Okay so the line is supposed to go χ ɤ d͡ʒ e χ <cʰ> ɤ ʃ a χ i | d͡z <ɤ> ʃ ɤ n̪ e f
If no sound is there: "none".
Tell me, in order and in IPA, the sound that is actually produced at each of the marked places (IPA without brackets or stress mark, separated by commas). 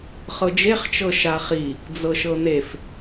t͡ʃ, ɤ